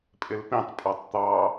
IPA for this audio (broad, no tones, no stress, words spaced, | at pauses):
pʼɪlpĩtˤpʼɔtˤ t̪ɑ